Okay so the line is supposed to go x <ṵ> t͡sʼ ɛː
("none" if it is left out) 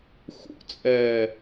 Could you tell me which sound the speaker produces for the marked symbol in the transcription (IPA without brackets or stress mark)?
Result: ṵ